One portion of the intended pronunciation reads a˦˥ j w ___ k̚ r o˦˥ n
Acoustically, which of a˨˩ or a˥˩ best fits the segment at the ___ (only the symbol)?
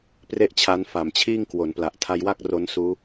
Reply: a˥˩